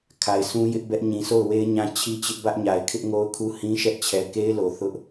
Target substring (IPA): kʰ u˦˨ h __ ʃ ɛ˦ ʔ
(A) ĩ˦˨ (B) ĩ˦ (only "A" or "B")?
B